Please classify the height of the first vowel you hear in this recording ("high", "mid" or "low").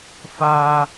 low